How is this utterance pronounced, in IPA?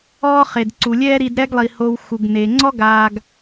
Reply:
ɔː˦ χ e˩ d ǀ u˩ lʲ ɛː˦ ɾ i˨ d ɾ ɛ˦ ɡ lˠ i˩ h o˨ w x u˩ ɡ n e˩ ŋ͡ǀ ɔ˥ ɡ aː˨ ɡ

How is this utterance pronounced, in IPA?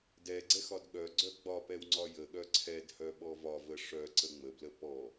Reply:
d ɛ ɡ͡ǀ ɛ x ɒ d ɠ œ ɡ͡ǀ œ ɡ͡b ɒ p ɛ w ŋ͡ǀ ɒ j ə ɠ œ ǀʰ ɛ d h œ ɓ ɔ v ɒ v ə ʂ œ ǀ ə ŋ͡m ə b l ə p ɔ

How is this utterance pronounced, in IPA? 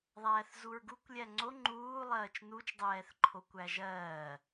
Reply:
ðˤ æː θ z u ɹ ɡ u kʷ lʲ æ ŋ͡ǀ o ŋ͡ǃ uː lˠ ɜː t͡ʃ n u t͡ʃ dˤ ɛː θ ǃʰ o kʷ æ ʒ ɜː

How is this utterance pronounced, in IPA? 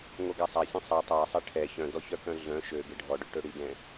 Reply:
ŋ o ɡ a sˤ a sʲ œ̃ sˤ ɛ tˤ a sˤ e ʈʰ ɛ ç œ̃ d ɔ ç œ k œ̃ ɮ œ̃ ʃ ø ɡ e ɖʱ ɔ ɖ ø ʈ ø ɽ i ɡ ɛ̃

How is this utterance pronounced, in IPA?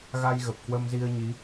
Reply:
ɣ a˧ j ɣ ə˨˩ p̚ k w ə˧ m z i˧ ə̯ ɲ i˨˦

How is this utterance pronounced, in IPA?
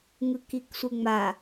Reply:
ŋ ɯ k i k sʷ ɯ ŋ͡m a

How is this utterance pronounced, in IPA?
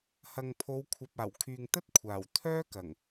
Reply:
h ɐ˨ ŋ pʰ o˨˧ w kʷʰ ɐ˨ p̚ aː˨˩ w kʰ yː˨ ŋ t̪ ɐ˥ t̚ kʷʰ aː˨˩ w t̪ʰ œː˥ k ɐ˨˩ ŋ

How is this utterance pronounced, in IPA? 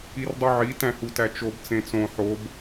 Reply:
i r dˤ u ʕ i t æ̃ h u t æ t͡ʃ o b t͡s ẽ t͡s õ ħ o b

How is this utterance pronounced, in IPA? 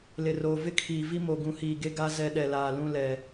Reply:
l ɪ˨ r oː˨ v ɪ˦ kʰ iː˨ v i˦ m o˨ ɡ ũ˨ h iː˨ ɡ e˦ ɡ a˦ z ɛ˦ ɗ ɛ˨ l aː˨ l ũ˦ l ɛ˨

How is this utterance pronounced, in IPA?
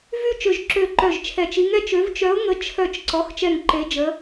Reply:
v y˦˨ t͡ʃ ø˦˨ ʒ ǁ ø˦˨ ǃ œ˦˨ ʒ t͡ʃʰ ɛ˦˨ t͡ʃ i˧˥ ŋ ɛ˧˥˧ t͡ʃ ø˧˥ v t͡ʃ œ˧˥ ʊ̯ ŋ ə˧˥ t͡ʃʰ œ˦˨ t͡ʃ ǀ ɔ˧˥˧ x t͡ʃ ɛ˦˨ ŋ ǃ e˧˥ d͡ʒ ə˧˥

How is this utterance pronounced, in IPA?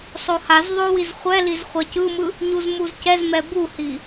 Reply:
sˤ o h a z ðˤ o w i z χʷ ɛ l i z χʷ ɛ c ɯ m ɯ | ɲ u z m u z c ɛ z m ɛ b u h i

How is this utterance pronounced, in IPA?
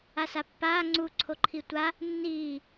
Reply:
a s a pː aː ŋ͡ǀ u ǀʰ o ǃʰ i tʷ a | nː iː

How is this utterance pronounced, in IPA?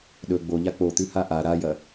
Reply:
ɗ ɵ ɡ͡b o ʎ a k͡p o t̪ ʉ h a ʔ a ɾ a j ɐ

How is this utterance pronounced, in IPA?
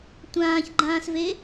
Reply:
tʷ ãː ç ɡ͡ǃ ãː s v e

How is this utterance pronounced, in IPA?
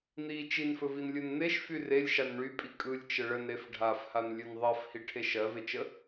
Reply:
n̪ i t͡ʃ i n f ɵ v i n lʲ ɯ n n̪ e ʃ f y r e lʲ ʃ a n ɳ y pʼ i kʼ ɯ lʲ t͡ʃ ə ɭ ə n ɾ e f ɖʱ a f h a n lʲ ɵ n ðˤ ɜ f h i ʈʰ e ʃ ɜ v e t͡ʃ ə

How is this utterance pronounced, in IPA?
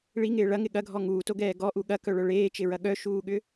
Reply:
ɭ i ŋ ɪː ɭ ɐ ŋ ɪ ɠ ɐ ɡʱ ɔ ŋ uː t o ɡ ɛː ɡ ɔ ʔ u ɠ ɐ k œ ɭ œ ɭ eː t͡ʃ ɪ ɹ ɐ ɠ œ ʃ uː ɠ ʏ

